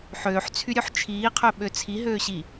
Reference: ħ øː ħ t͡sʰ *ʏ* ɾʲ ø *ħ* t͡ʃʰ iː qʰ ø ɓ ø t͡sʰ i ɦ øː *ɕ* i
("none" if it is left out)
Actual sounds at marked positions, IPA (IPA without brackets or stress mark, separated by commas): y, ħ, ɕ